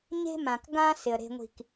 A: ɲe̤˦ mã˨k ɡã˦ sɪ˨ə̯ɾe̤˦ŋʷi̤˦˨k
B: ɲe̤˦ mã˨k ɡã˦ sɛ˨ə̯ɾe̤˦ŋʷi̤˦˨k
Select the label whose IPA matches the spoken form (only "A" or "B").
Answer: A